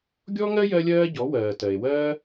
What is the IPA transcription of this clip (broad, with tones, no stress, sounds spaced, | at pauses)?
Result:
ɡʲ ɔ˥ ŋ ɜ˥ j ɜ˥ lʲ ɜː˥ ɟ ɔ˨˥ w ɜː˨ t ɜ˨ e̯ w ɜː˥